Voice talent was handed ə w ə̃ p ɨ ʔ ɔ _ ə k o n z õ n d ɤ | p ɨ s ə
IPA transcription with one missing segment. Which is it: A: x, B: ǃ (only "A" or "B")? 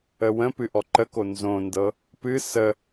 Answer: B